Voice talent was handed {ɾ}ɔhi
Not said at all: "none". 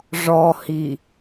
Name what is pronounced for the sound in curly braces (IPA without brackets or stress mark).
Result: ʐ